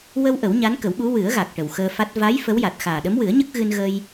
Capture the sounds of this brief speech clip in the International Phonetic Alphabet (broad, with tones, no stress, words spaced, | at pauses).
wə˧w ʔə˨˩˦wɲa˧˥nkə˨˩˦wɓu˧˥ wɨ˨˩˦ə̯ɣa˨˩k̚ ʈə˨˩wxəː˧fa˦˥t̚ va˧˥j fə˧˥wja˨˩t̚ xaː˨˩ɗə˧˥mwɨ˨˩˦ə̯ɲə˦˥k̚ ɣɨ˧nɣə˧j